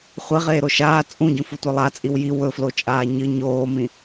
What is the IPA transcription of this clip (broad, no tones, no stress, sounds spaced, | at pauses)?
χʷ e ʁ eː ɾ o ʃ aː t͡sʼ ũ ɟ ũ f u tʷ ɐ lˠ a t͡sʼ i w j i w ɵ f l o t͡ʃʼ aː ɲ ɨ ɲ oː m ĩ